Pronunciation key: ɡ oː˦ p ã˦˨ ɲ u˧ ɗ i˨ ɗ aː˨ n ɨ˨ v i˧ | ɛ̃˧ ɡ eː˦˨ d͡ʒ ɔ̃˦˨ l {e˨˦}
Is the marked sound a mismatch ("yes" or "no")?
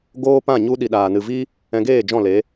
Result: no